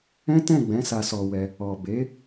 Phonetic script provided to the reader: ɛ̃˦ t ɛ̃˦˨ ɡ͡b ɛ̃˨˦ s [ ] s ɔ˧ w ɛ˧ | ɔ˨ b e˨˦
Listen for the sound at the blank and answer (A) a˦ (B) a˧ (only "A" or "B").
B